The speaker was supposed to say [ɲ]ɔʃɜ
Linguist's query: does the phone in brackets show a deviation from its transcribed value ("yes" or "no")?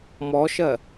yes